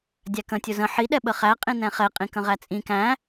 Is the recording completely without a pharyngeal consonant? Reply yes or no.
no